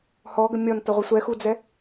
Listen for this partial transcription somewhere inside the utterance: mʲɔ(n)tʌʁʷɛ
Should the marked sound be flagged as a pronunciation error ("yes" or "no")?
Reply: no